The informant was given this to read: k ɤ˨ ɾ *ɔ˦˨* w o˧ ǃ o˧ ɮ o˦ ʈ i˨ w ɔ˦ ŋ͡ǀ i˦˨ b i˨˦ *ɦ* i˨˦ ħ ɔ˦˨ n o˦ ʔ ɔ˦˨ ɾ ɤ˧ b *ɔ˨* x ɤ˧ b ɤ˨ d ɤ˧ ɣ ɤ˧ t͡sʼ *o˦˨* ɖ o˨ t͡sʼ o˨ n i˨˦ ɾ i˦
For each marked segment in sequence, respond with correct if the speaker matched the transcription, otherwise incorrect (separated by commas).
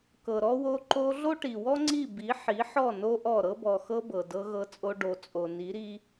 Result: incorrect, incorrect, correct, incorrect